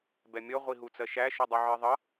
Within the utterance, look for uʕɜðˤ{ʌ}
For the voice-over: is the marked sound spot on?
yes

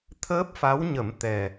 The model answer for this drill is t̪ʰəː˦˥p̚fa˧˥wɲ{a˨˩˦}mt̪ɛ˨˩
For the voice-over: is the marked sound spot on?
no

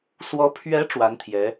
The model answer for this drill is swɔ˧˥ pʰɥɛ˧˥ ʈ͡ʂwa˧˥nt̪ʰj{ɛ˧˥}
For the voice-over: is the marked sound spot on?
yes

